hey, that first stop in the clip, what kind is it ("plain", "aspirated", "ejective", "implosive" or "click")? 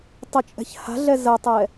plain